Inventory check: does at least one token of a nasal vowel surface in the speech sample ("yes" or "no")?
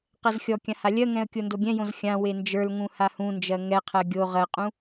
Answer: yes